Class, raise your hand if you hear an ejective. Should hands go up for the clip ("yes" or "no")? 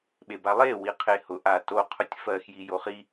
no